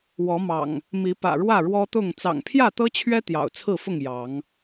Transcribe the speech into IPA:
w ɔ˨˦ m ɑ̰˨˩ ŋ | m i˨˦ p ä̰˨˩ ɻ w ä˥˨ ɻ w ɔ˦ t̪ ʊ˥˨ ŋ t͡s ɑ̰˨˩ ŋ pʰ j ä˥˨ t̪ ɤ˦ t͡ɕʰ ɥ ɛ˦ t̪ j ɑ̰˨˩ ʊ̯ t͡sʰ ɹ̩˥˨ f ʊ˥˨ ŋ j ɑ˨˦ ŋ

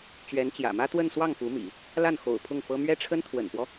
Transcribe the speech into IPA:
t͡ɕ ɥ ɛ˧˥ n t͡ɕ j ä̰˨˩ m ä˥ t̪ w ə˥˧ n s w ɑ˥˩ ŋ f u˧˥ m ḭ˨˩˦ | l a˥˩ n x o̰˨˩ ʊ̯ pʰ ʊ˥˩ ŋ f ɤ˥ m ɥ ɛ˥ ʈ͡ʂʰ ə˥ n t̪ʰ w ə̰˨˩ n p w ɔ˦

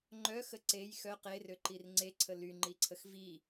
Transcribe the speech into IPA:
ŋ͡ǃ œ x ə ǀ e j x œ q e r ø ǃ i r ŋ͡ǀ e ǀʰ ə l y ŋ͡ǃ i ǀʰ ə x v i

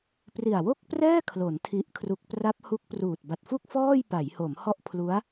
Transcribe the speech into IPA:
p r i˨˩ a̯ w o˥˩ k̚ p r ɛː˥˩ kʰ l o˩˦ n tʰ i˨˩ ʔ kʰ r u˨˩ k̚ p r a˦˥ p̚ h u˦˥ k̚ p r uː˨˩ t̚ b a˨˩ t̚ f u˥˩ k̚ f ɔː˥˩ j p a˩˦ j h o˩˦ m h ɔ˦˥ ʔ pʰ l u˦˥ a̯

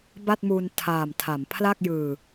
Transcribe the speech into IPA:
b a˥˩ t̚ m u˧ n tʰ aː˨˩ m tʰ a˩˦ m pʰ l a˥˩ k̚ j ɯː˧

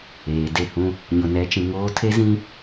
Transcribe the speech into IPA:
eː˨ d e˦˨ h ũ˦ | ɲ ʊ˨ n ɛ˨˦ t͡ʃ ĩ˨ ŋ oː˦ tʰ e˦ z ĩ˦

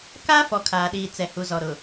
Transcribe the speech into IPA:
k a˦ f ɔ˨˦ kʰ aː˨ ɗ iː˨ t͡s ɛ˨ h u˨ z ɔ˨ ɾ ʊ˨

